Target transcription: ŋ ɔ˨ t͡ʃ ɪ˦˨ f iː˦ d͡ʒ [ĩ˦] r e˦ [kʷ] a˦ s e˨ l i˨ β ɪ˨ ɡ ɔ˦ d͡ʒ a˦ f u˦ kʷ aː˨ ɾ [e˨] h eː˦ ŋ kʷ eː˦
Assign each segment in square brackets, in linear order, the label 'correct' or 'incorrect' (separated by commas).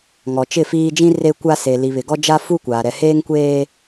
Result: correct, correct, incorrect